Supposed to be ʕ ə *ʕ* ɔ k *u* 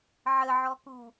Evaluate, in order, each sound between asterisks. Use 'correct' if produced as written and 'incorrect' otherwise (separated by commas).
correct, correct